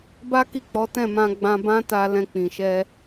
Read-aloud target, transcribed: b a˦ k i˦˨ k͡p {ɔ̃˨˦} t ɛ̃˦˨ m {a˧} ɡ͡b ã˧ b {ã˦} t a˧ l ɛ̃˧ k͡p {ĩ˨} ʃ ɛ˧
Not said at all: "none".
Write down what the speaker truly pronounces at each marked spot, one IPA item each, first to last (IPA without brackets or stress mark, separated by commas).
ɔ˨˦, ã˧, ã˦, ĩ˨